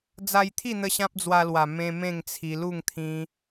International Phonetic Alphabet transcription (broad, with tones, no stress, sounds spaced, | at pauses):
d͡z a˧ j t̪ʰ i˥˧ n̪ ə˧ ɕ ã˦ p̚ d͡z w a˧ l w a˨˩ m ẽ˧ m ẽ˥˧ ŋ t͡sʰ i˧ l u˥˧ ŋ t̪ʰ ĩ˧